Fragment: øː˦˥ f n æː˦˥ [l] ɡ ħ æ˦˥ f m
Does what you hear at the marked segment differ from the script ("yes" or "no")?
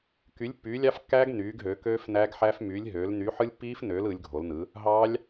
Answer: yes